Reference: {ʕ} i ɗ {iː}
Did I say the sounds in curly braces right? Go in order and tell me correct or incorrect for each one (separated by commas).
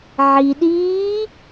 correct, correct